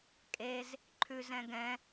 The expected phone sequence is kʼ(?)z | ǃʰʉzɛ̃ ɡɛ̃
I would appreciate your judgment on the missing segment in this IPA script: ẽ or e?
e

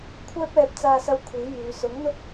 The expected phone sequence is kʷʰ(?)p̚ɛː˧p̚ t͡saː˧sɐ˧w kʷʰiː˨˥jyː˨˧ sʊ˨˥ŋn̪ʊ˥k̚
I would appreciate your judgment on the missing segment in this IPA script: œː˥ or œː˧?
œː˥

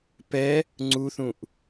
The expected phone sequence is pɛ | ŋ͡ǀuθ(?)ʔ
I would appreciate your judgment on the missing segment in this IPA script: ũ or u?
ũ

